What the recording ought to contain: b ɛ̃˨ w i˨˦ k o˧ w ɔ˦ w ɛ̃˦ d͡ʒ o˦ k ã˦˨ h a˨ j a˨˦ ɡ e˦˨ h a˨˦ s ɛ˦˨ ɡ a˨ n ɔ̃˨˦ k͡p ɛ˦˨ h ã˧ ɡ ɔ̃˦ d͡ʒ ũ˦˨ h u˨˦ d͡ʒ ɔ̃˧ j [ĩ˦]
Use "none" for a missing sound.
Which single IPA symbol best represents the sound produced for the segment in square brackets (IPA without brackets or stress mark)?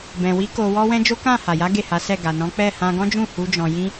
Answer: ĩ˦